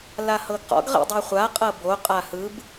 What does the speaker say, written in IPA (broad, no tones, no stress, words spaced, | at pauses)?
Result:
lahɤɡqɔ̰ɡ ʁḭdˤɤχʷa qʼɤbo qʼahɯb